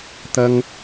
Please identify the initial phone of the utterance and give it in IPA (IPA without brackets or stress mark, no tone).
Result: t̪